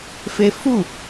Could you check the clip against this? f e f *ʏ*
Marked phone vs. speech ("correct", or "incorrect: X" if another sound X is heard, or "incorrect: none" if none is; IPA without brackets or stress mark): incorrect: u